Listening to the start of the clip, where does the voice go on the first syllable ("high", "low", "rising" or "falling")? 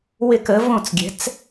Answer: falling